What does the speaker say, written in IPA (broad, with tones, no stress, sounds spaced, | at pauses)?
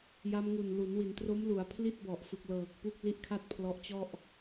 j a˧ m ŋ u˨˩ n l u˩˦ n w i˩˦ n t r o˦˥ m l u˩˦ a̯ pʰ l i˥˩ t̚ b ɔ˨˩ ʔ f ɯ˨˩ k̚ l ɤː˨˩ k̚ p u˥˩ k̚ l i˥˩ ʔ kʰ a˥˩ t̚ pʰ l ɔ˦˥ ʔ t͡ɕ ɔ˥˩ ʔ